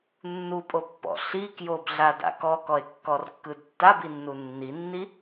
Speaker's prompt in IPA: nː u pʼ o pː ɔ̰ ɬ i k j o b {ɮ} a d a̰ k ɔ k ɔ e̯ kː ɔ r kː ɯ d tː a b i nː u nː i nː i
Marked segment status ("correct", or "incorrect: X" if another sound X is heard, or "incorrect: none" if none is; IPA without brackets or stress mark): correct